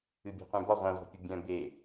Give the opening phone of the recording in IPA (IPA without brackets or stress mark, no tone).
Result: ɨ